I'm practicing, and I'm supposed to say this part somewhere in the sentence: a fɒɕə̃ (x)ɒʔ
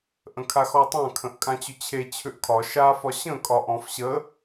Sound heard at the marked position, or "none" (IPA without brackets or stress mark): kʼ